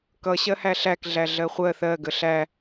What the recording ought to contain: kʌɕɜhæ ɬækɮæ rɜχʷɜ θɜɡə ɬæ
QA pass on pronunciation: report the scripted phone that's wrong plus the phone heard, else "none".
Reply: r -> ɮ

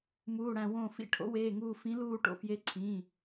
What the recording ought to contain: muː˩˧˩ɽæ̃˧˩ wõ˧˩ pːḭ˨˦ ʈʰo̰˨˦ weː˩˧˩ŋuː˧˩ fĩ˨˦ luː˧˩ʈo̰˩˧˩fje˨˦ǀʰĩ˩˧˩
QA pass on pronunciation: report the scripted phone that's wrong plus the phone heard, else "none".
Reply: pː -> f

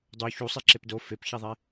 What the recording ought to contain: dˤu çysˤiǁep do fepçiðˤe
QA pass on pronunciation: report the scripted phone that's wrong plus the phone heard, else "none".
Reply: y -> u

